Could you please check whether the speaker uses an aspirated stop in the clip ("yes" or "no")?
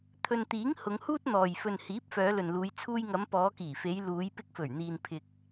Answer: yes